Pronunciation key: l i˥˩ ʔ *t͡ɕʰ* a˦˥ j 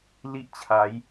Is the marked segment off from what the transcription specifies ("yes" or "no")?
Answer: no